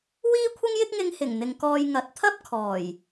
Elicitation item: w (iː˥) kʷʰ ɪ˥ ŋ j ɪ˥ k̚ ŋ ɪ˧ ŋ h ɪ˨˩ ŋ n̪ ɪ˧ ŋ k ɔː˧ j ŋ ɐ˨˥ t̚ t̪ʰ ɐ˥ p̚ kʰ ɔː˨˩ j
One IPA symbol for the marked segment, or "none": iː˥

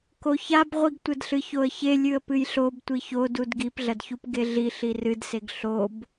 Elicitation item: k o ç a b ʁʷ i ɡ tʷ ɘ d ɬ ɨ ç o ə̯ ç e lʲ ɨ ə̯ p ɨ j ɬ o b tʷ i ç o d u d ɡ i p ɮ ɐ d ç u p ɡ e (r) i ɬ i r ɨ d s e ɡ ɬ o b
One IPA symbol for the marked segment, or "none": ɮ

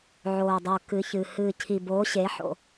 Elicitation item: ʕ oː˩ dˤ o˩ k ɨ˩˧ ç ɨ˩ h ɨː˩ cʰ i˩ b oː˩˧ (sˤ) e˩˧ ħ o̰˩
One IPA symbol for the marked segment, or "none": ɕ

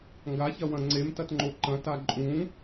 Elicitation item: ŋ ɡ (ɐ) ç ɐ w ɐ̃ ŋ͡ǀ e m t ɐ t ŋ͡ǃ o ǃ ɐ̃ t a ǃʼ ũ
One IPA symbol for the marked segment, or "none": a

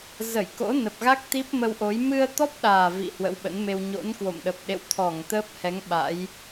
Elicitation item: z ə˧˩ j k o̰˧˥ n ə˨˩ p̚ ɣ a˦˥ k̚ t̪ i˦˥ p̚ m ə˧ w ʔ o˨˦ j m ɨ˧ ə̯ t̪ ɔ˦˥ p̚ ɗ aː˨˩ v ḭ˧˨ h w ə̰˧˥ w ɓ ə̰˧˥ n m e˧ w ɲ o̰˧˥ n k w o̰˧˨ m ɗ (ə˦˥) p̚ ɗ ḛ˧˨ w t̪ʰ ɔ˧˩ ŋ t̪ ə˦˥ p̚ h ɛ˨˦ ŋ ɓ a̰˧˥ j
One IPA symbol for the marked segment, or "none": ə˨˩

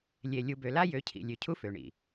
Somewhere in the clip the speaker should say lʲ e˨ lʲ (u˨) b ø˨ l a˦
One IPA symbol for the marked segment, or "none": u˨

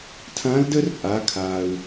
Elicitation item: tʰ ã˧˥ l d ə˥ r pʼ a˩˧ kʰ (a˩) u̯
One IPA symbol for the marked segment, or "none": a˩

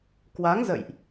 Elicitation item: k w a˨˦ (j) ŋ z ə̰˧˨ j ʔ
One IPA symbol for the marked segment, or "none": none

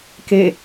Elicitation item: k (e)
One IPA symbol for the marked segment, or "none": e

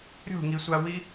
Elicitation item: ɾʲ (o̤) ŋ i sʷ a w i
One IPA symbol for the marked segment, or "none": o̤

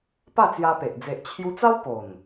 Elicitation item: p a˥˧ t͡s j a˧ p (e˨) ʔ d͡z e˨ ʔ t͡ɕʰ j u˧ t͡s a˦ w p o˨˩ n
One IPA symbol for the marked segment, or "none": e˨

